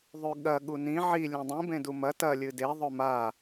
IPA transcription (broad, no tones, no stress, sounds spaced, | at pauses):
ðˤ ʉ ɠ ɐ ɠ u n ĩ ʕ i lʲ ẽ dˤ ĩ b ẽ d u m ɐ t ɐ lʲ ɨ d e ðˤ ɵ m a